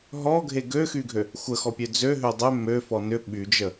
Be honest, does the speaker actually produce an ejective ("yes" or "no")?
no